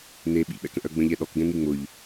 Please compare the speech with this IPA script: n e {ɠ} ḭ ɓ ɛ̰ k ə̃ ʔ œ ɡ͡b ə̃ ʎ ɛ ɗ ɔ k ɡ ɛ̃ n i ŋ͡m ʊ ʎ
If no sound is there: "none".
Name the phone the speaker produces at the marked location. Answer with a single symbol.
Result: ɓ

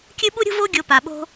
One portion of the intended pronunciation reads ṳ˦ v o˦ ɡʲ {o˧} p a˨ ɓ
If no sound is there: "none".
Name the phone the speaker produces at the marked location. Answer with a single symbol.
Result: o˧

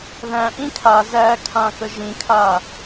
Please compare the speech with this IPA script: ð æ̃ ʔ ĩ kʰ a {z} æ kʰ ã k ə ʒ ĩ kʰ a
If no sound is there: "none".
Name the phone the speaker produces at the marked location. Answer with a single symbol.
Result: z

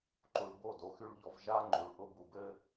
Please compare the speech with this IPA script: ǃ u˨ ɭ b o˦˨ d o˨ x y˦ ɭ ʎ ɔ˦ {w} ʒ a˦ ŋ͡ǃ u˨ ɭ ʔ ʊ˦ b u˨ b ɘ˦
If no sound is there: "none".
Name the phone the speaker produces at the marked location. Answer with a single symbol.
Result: v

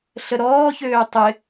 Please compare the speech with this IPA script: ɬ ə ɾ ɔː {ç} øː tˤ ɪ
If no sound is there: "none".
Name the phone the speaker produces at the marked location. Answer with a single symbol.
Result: ç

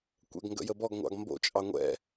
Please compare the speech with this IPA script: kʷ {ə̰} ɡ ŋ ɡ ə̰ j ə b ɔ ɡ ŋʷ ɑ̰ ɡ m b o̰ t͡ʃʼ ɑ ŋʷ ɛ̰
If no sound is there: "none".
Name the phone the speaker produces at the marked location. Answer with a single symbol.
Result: ɛ̰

